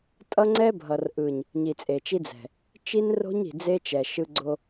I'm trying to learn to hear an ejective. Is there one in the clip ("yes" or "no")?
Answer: yes